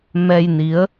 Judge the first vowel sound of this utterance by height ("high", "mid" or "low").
mid